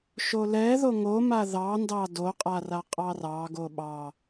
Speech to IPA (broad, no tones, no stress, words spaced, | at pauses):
ʃolɛ ðoŋo maðɑ ndɑdo qʼaraqʼɑrɑ ɡoɓɑ